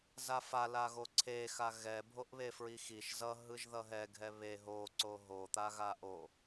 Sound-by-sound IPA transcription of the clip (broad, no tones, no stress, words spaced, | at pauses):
zafa laɣoǀʰe xaɣɛ bʱoʔβefɹixiʃ zʌ ɦɯʒðʌɦɛ ɡʱɛβe ɦo ǀoɦo t̪aɣaʔo